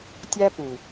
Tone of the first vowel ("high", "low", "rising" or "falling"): high